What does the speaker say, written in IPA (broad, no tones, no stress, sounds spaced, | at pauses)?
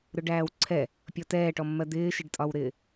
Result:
ɾ ʊ ɖ æː w ǀʰ ɛ | pʲ ɔ t ɛː ʈ ɔ mː ɜ d̪ ɪː ʃ ɪ ɖ tʼ ɒ w ɾ ɪː